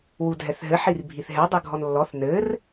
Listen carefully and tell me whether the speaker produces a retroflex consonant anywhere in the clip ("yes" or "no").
no